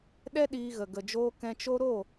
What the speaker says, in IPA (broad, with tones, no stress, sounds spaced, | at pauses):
ɗ ɛ˦ ɗ iː˧ ɣ ə˨ ɡ ə˨ d͡ʒ oː˧ k ɛ̃˧ t͡ʃ o˦ ɾ o˦˨